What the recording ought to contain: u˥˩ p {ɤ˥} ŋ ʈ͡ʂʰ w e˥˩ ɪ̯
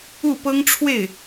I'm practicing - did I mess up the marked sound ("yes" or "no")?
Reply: no